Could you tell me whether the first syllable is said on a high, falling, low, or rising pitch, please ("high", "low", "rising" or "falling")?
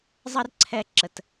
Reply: high